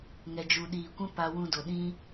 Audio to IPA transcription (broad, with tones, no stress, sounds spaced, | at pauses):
ŋ ɛ˨ d͡ʒ u˨ ɗ iː˨ kʷ ɛ̃˦ p a˧ w ũ˧ d o˨ ɗ ĩ˦